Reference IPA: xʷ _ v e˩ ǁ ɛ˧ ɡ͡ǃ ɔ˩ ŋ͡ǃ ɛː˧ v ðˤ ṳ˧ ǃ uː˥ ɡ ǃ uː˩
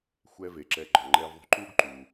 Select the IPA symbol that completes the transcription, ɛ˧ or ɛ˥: ɛ˧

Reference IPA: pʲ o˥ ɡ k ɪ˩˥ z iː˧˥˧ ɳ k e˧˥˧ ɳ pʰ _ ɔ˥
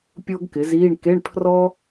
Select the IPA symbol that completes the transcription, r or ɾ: r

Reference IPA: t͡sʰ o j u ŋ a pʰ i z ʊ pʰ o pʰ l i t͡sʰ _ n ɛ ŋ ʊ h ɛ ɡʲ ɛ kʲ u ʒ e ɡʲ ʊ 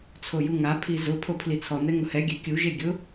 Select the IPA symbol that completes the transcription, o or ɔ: ɔ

